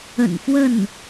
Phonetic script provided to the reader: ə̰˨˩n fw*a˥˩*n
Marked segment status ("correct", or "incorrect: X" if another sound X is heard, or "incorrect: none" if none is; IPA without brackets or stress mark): incorrect: ə˥˩